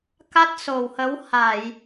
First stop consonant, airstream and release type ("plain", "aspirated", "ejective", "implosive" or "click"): plain